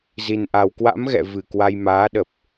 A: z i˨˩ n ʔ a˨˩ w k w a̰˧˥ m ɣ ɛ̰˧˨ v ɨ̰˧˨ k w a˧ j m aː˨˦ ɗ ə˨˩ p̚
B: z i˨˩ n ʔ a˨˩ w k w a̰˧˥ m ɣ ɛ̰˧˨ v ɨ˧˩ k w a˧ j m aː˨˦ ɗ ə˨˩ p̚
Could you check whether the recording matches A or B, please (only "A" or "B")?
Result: B